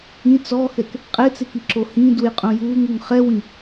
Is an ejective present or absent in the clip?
present